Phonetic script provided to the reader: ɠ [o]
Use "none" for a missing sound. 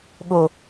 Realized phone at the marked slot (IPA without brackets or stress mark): o